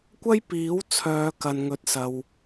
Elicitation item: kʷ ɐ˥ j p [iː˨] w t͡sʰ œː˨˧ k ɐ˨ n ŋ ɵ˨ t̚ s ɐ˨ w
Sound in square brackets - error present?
yes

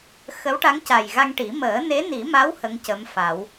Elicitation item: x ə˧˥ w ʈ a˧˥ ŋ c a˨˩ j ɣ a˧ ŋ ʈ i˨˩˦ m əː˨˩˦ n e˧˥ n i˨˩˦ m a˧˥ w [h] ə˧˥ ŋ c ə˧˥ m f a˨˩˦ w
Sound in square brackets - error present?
no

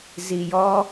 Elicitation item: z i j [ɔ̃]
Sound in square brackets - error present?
yes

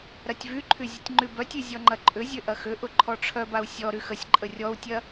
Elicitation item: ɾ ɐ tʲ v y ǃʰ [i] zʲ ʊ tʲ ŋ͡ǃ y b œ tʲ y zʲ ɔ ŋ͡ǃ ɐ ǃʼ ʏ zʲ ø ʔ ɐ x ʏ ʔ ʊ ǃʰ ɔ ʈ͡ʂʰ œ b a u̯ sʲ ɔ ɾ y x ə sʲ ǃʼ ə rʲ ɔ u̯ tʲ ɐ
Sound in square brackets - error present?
yes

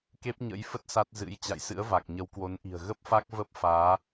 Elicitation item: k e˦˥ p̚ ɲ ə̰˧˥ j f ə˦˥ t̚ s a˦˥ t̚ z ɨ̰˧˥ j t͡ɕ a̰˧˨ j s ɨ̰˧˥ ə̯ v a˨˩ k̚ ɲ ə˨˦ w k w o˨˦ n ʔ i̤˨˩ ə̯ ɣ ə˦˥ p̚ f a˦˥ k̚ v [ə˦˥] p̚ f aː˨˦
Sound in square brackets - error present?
no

